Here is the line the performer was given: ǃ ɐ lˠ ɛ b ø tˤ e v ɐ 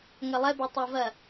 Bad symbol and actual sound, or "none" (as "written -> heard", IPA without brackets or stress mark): ǃ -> ŋ